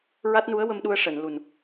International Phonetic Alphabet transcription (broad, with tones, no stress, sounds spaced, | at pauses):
ɹ a˦˥ t̚ n u˧˥ ə̯ w ə˧ m ɗ u˧ ə̯ ʂ əː˨˩˨ n l u˨˩ n